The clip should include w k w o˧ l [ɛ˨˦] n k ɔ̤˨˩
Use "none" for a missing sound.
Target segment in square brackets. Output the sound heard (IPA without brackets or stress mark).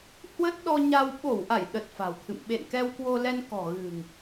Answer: ɛ˧